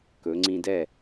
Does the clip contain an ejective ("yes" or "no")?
no